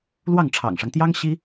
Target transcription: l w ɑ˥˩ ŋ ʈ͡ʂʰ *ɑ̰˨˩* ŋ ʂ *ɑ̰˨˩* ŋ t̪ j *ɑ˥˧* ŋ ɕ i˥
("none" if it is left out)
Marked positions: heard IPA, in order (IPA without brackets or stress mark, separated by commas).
ɑ̰˨˩, ɑ˦, ɑ˥